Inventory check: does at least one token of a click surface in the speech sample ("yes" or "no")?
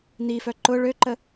yes